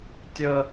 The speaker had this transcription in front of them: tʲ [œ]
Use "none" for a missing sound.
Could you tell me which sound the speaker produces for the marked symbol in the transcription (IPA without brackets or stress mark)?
ə